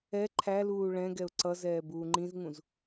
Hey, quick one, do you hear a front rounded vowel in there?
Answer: no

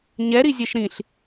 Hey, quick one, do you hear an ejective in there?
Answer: no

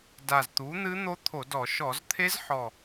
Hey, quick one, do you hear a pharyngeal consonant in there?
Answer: yes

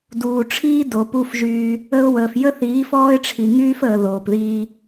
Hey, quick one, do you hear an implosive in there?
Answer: no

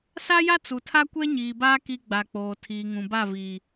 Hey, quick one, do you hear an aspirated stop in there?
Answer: yes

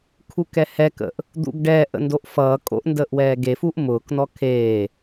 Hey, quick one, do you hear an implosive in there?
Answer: no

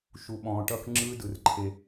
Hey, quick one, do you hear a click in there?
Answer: yes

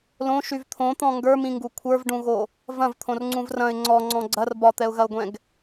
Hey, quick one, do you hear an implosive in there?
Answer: no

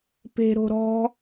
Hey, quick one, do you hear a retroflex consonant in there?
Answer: no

